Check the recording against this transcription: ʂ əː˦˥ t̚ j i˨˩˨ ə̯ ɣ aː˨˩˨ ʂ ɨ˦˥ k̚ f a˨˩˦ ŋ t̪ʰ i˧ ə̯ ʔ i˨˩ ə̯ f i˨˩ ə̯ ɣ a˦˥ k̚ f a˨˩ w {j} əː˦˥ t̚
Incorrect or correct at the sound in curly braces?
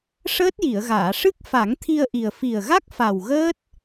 incorrect: ɣ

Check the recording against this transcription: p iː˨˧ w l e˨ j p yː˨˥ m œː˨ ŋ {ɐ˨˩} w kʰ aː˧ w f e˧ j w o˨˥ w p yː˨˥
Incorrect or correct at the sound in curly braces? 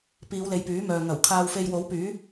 correct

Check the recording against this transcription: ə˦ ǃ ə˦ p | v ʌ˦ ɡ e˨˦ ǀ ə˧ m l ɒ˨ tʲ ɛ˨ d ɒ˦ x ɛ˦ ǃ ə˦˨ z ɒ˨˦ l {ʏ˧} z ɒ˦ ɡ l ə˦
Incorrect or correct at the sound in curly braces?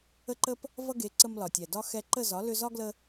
correct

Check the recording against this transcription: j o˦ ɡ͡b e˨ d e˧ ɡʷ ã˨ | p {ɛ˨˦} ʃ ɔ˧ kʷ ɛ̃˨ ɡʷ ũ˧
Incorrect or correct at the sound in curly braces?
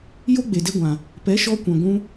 correct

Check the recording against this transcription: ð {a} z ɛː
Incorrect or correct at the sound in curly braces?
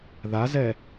correct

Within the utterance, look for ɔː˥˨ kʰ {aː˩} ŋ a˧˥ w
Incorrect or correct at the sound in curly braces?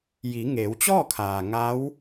correct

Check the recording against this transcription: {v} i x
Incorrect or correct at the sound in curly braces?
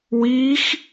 incorrect: w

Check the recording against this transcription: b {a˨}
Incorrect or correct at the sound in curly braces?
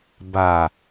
correct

